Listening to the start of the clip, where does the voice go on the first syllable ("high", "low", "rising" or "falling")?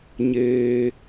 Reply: low